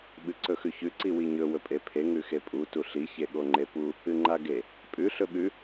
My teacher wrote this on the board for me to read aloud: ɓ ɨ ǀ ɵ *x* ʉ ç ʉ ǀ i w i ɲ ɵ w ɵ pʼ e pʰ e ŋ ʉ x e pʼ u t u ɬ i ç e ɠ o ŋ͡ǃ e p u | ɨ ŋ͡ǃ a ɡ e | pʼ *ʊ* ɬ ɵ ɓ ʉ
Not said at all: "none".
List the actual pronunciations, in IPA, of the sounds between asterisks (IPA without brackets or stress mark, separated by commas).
x, ʉ